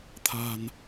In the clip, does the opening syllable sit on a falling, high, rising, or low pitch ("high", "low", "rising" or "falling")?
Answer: low